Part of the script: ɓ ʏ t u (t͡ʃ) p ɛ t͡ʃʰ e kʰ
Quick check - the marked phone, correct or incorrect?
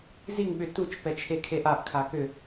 correct